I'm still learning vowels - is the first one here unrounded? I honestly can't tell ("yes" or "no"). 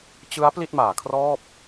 yes